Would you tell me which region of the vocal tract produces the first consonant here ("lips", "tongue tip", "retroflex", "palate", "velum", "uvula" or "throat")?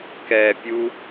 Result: velum